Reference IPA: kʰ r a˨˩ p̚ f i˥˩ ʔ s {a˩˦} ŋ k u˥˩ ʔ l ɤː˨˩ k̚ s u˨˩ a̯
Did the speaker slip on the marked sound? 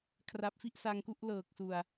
yes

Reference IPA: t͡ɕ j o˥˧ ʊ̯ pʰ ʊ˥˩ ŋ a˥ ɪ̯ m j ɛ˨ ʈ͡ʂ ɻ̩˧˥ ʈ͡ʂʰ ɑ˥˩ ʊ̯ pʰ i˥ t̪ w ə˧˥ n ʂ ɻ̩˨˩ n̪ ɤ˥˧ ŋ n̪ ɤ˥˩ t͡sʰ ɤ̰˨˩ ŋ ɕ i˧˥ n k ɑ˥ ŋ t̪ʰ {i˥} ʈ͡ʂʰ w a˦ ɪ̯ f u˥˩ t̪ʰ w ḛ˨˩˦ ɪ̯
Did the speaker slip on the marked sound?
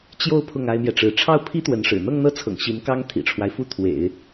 yes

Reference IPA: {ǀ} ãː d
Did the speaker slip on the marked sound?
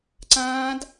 no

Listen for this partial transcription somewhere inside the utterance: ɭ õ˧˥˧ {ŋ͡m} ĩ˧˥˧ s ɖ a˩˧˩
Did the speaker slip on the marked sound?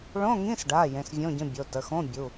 yes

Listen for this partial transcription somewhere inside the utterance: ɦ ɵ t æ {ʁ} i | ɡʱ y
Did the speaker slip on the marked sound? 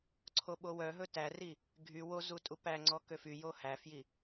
yes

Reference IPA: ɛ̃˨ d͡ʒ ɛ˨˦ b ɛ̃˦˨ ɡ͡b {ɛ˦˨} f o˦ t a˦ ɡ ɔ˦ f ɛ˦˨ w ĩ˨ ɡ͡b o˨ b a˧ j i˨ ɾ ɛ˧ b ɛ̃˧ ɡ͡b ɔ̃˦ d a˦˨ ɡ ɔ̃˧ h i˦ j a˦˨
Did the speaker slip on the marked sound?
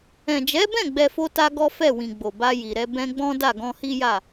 yes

